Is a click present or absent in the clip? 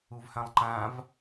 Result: present